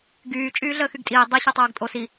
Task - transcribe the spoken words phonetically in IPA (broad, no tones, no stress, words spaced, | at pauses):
ɡyː t͡ʃʼyːɮəːxyɡtʼiː dˤi ɕɤtˤoːɡtʼos i